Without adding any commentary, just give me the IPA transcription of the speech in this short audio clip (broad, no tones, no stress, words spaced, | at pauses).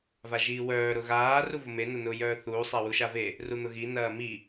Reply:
vaʒiːwœː ɾʊɣaː ruvʊme nʊnʊːjœːθuː sˤawuʃave | run̪ʊɣi nɐːmi